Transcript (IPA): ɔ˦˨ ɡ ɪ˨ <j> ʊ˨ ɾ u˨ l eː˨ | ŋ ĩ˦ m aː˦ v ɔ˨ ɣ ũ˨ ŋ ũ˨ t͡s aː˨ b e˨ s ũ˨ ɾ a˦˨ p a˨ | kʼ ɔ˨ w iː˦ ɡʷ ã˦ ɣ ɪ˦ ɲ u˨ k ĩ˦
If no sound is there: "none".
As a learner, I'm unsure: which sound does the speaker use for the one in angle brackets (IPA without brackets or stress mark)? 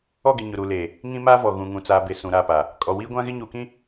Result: ɲ